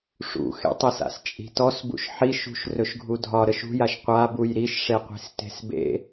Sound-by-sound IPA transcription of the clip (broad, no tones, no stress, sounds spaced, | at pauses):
ʂ ṵ x ḛ tˤ i s a̰ s t͡ʃʼ i̤ t ɔ s b ṵ ʃ ħ i ʃ ṳ ʃ r ɵ ʃ ɡʱ u dʱ ɒ ɾ ə ʃ ṳ j a ʃ qʷ a b u j ɾ i ʃ ʂ e qʷ i̤ s t e̤ s b ḛ